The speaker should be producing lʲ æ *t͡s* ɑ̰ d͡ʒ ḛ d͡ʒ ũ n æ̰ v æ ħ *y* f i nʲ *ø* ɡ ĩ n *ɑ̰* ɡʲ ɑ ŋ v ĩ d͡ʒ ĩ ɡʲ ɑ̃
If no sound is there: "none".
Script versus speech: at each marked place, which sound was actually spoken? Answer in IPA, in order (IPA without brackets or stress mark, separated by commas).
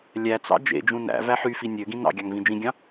t͡s, y, ø, ɑ̰